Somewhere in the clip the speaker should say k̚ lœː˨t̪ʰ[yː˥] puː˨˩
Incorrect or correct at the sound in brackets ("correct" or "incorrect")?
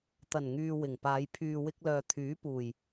incorrect